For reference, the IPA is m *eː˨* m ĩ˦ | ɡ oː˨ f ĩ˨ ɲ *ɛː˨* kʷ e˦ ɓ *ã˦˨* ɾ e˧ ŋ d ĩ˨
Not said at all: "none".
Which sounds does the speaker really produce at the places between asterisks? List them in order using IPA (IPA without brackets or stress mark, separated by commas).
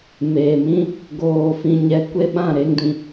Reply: eː˨, ɛ˨, ã˦˨